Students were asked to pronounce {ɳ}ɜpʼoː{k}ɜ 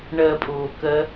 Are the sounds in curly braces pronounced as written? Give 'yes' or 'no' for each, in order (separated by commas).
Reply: yes, yes